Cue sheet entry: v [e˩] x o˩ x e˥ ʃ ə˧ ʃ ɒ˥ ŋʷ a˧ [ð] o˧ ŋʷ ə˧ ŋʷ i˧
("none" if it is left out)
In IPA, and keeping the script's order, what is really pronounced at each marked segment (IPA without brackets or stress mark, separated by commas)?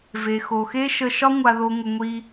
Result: e˩, ð